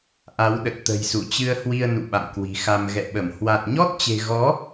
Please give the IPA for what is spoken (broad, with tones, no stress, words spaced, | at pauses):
ʔa˨˦wɗə˨˩t̚t̪ə̤˨˩jsu˧˩ t͡ɕɨ˧ə̯hwi˧ə̯nṵ˧˨ ɓa̰˧˨mkwi̤˨˩xa˧m ɣɛ̰˧˨ɓə˧˩m hwa˨˩t̚ɲɔ˦˥t̚t͡ɕe̤˨˩ɣɔ˨˦